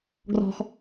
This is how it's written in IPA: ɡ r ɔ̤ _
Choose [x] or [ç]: x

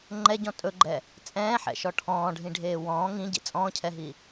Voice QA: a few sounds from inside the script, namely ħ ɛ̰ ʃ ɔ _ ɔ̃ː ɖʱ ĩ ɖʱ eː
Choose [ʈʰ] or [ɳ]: ʈʰ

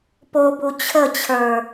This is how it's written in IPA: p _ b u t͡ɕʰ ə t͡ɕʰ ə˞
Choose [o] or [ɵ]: o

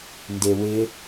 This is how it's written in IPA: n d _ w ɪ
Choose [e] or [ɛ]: e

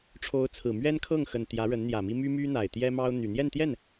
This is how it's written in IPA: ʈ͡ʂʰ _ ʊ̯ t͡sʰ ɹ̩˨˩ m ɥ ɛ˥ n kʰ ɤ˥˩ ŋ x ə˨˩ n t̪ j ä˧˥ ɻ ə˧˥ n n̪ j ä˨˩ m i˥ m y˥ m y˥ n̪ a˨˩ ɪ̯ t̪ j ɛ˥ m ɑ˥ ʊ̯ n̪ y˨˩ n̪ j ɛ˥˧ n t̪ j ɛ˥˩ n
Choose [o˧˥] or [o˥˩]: o˧˥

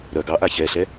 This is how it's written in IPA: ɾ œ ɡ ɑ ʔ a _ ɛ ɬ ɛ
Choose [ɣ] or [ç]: ç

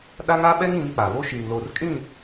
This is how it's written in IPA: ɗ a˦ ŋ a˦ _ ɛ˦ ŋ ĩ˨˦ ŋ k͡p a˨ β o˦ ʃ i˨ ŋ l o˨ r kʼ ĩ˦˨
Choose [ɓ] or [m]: ɓ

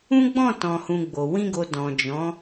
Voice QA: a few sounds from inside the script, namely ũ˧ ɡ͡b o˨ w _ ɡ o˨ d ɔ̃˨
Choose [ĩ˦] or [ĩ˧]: ĩ˧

